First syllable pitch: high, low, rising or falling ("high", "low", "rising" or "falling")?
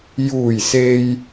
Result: low